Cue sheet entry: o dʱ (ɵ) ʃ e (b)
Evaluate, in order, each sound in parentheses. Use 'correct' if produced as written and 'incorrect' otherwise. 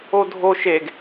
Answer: incorrect: o, incorrect: ɡ

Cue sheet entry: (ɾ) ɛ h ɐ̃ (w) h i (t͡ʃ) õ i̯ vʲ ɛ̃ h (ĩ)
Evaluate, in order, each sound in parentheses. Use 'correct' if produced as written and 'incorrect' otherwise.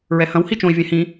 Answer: incorrect: ɹ, correct, correct, correct

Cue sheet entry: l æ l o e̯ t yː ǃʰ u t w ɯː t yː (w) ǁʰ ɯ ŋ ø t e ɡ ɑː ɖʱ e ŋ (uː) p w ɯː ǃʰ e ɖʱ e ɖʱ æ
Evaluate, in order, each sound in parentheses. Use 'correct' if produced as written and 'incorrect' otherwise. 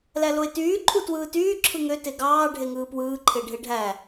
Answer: incorrect: none, incorrect: ɯː

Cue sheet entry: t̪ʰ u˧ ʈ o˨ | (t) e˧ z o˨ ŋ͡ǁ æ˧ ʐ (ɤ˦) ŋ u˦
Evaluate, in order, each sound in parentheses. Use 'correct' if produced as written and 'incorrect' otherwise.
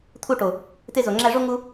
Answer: correct, incorrect: o˦

